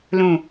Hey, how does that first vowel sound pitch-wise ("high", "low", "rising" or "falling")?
low